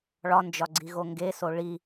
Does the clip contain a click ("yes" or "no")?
yes